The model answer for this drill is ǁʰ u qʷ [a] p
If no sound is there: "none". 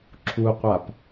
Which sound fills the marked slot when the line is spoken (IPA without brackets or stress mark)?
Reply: a